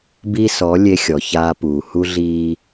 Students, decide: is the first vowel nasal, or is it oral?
oral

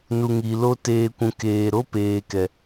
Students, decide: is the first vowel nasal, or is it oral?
oral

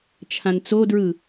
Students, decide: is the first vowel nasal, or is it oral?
nasal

